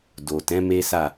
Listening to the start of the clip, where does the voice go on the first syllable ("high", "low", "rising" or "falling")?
low